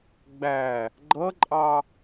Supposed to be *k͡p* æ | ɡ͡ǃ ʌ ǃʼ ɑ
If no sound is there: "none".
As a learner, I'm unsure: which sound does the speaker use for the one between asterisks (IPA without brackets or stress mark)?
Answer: ɡ͡b